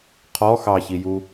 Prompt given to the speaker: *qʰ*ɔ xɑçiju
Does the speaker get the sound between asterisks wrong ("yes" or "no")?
no